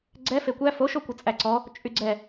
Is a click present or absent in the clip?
present